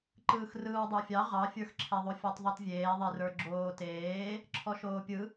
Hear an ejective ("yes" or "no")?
no